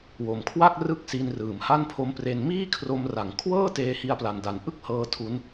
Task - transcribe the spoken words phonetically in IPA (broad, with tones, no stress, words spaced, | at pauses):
wo˨˩mkʰwa˥˩k̚ rɯ˥˩k̚si˧n rɯː˩˦mha˥˩npʰo˦˥mpre˧n miː˥˩kʰro˧m ra˩˦ŋkʰwɤː˥˩ teː˧hi˧a̯pla˨˩nda˩˦n ʔɯ˥˩k̚hɤː˧ tʰu˦˥n